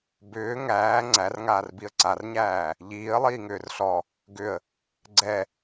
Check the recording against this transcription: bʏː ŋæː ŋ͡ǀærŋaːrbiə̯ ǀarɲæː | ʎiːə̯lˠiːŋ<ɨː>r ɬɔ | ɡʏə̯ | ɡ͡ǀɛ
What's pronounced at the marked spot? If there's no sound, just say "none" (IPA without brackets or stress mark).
ʏː